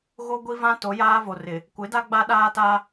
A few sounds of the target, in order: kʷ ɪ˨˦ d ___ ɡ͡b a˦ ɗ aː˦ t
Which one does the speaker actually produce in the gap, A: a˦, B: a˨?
A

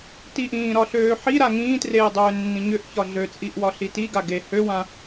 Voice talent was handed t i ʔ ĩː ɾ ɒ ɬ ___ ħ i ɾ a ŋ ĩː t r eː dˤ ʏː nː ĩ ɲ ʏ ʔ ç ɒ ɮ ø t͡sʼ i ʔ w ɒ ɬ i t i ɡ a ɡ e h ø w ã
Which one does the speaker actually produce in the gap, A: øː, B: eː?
A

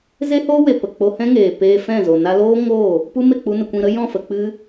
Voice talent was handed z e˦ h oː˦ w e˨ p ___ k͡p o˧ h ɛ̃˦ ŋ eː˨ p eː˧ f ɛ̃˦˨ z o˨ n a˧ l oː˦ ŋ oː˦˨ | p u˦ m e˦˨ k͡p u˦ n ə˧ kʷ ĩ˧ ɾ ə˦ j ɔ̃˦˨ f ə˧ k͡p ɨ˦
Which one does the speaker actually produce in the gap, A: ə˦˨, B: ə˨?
B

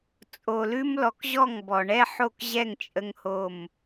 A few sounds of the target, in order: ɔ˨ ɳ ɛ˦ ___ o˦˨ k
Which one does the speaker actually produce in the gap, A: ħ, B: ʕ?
A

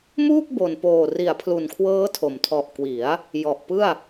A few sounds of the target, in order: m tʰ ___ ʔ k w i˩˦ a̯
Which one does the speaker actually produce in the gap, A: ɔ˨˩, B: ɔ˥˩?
A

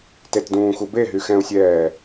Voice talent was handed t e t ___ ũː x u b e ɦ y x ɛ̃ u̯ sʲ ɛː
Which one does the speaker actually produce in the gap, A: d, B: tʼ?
A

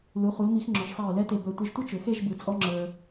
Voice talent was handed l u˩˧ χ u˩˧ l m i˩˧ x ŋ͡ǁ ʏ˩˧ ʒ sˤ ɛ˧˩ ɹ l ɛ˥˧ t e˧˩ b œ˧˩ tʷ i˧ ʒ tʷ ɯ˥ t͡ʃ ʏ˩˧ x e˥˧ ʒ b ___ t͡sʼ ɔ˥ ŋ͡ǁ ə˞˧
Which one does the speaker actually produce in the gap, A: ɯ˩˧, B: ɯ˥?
A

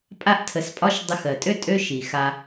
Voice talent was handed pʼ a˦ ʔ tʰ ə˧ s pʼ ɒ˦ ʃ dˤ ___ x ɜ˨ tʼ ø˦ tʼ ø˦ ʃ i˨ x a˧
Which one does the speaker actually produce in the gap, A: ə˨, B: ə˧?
B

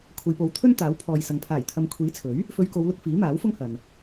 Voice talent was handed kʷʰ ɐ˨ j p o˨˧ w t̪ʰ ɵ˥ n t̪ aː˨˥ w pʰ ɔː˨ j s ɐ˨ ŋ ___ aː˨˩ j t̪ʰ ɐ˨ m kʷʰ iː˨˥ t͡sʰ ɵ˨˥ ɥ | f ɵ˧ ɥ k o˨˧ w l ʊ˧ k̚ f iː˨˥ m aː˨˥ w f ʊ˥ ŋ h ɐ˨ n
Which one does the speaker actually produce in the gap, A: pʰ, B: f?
A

